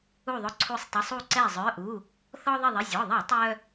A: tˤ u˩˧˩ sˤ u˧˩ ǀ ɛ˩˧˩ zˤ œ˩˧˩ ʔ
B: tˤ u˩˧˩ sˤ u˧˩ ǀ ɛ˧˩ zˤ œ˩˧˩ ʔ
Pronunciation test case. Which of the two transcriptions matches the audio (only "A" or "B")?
B